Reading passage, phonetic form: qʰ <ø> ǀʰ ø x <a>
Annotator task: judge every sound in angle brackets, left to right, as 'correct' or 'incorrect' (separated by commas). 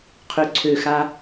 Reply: correct, correct